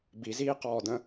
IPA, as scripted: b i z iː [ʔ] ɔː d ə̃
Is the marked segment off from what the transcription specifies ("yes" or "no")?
yes